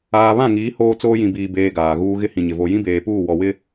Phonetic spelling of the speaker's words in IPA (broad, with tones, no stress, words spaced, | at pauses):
aː˨βã˦˨ŋiː˨˦ hoː˦t͡soː˦ jĩ˨biː˨beː˨ ɡaː˨ɣuː˦ ɣɪ˦ hĩ˨ɲɪ˨ vo˨jĩ˦beː˨puː˦˨ wɔ˨wɪ˦